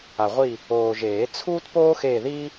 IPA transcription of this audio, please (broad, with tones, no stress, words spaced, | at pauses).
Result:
a˨ʁʷi˦˨ | oː˨ʒeː˨˩˦ t͡sʰuː˥tpoː˥xe˦˨ði˥